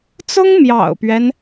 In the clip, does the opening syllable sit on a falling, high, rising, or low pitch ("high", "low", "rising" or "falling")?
high